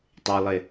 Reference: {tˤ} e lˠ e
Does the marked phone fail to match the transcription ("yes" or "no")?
no